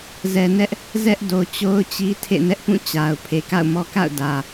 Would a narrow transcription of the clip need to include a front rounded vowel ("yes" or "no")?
no